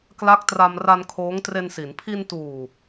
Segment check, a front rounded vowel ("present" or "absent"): absent